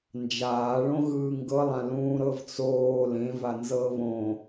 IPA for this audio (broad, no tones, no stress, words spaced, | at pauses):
nd͡ʒaːɭõɣɯː ŋɡɤlˠã lũːɾɤvt͡soː lẽva nzɤβõ